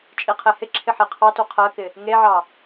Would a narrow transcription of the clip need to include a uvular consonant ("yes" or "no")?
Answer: yes